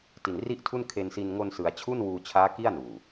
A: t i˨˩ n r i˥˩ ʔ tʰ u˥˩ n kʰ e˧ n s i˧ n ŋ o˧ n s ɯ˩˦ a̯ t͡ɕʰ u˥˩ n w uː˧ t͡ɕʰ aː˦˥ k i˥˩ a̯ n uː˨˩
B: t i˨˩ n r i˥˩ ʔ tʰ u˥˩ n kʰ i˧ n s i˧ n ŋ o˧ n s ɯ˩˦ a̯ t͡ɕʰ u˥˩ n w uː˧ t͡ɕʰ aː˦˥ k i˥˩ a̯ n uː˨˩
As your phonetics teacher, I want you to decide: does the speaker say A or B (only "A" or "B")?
A